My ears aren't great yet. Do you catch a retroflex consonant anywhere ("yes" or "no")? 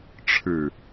yes